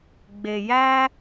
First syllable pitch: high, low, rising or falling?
low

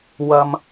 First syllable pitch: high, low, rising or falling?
low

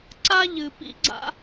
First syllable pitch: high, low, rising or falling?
high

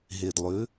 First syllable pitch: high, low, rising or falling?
low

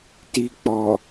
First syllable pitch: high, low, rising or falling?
low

